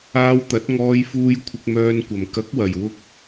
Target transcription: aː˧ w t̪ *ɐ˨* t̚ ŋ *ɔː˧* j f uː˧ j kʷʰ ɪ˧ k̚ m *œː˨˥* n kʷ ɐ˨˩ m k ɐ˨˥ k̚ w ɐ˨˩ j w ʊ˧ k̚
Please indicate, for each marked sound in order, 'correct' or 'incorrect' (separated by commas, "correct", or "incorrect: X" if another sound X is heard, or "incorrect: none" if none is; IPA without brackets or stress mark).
incorrect: ɐ˨˥, correct, incorrect: œː˧